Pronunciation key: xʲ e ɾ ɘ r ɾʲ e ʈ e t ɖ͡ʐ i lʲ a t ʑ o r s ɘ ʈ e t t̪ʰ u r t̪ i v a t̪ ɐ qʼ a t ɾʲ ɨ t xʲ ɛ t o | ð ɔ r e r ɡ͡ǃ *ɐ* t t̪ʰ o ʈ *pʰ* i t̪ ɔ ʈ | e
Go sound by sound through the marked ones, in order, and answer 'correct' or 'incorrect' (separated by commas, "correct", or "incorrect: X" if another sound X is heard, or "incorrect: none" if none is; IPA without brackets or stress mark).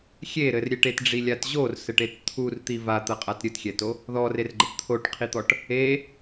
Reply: correct, incorrect: qʰ